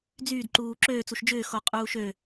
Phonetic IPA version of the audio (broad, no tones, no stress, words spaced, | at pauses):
d͡zyːdǃuː ǁøːt͡suʃ d͡ʒʏːxo qʼuːʃø